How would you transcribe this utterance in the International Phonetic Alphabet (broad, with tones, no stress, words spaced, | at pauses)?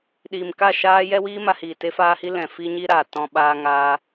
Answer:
ɗiː˨mka˦˨ʃaː˦ jɛ˦wiː˦ma˧hiː˨ te˦faː˦hi˦ lɛ̃˨fi˦ɲi˦ ɾaː˨ tɔ̃˧ɓaː˧ ŋaː˦